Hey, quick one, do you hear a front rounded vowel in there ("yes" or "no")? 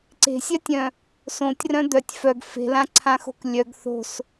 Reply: yes